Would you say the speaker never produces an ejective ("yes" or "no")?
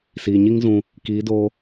yes